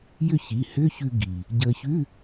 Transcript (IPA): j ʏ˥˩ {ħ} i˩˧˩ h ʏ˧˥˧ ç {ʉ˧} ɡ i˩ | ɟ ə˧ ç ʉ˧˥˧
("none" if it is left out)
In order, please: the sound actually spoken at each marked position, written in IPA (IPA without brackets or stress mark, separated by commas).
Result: ç, ʉ˧